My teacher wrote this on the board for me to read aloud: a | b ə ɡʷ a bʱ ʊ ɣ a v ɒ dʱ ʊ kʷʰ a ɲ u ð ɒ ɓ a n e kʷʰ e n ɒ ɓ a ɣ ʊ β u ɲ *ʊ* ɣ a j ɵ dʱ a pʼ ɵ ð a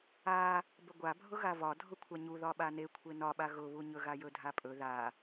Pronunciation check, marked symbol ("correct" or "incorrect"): incorrect